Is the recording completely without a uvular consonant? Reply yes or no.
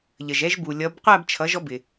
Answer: no